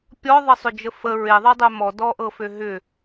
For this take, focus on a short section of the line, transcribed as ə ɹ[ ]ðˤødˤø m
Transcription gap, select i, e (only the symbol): e